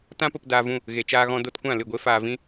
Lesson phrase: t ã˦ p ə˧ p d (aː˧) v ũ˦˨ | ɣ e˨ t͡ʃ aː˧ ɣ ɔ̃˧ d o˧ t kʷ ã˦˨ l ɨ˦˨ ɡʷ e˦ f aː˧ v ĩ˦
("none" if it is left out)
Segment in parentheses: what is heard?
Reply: aː˧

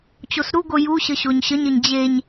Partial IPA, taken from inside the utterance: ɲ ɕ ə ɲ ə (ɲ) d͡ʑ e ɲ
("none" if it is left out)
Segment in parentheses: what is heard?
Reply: ɲ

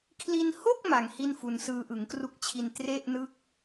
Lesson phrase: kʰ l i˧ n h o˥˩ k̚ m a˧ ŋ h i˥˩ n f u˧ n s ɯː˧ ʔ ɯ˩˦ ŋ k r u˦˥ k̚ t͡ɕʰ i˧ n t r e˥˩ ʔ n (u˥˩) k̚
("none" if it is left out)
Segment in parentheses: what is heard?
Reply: ɯ˥˩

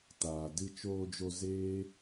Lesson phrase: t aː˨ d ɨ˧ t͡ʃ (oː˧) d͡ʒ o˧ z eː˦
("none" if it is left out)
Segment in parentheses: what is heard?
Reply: oː˧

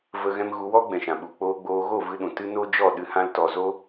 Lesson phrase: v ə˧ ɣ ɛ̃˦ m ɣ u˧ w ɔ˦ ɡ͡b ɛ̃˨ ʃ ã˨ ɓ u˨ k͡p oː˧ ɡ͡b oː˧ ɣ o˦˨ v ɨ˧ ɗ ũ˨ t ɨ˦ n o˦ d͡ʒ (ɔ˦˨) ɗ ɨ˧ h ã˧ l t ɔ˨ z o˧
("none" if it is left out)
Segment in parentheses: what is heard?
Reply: ɔ˦˨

